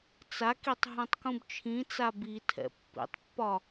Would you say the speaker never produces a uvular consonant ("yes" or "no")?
yes